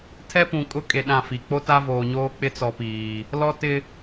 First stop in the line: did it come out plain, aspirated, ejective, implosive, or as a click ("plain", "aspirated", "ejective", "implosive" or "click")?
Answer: aspirated